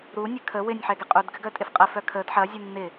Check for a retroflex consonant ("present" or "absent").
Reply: absent